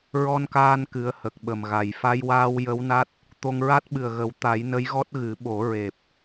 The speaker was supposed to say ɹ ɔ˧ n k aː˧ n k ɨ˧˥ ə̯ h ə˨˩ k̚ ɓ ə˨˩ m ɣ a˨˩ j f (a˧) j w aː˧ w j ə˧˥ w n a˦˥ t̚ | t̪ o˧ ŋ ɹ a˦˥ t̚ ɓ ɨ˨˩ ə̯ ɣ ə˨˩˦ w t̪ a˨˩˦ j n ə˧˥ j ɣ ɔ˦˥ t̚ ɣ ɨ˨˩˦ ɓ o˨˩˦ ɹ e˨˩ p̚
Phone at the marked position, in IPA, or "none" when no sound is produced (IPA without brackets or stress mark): a˧